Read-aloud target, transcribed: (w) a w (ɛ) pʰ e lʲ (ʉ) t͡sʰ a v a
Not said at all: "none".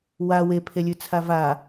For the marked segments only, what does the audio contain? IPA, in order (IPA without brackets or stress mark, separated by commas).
w, e, ʉ